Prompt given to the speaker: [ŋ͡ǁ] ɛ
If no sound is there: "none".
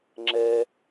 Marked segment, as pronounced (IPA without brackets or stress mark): ŋ͡ǁ